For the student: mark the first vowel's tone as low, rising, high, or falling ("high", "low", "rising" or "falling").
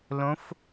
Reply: rising